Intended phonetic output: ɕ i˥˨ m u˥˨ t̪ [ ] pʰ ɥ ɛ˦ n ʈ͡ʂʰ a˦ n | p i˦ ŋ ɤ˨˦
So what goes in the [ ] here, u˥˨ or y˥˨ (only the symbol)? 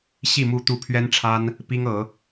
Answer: u˥˨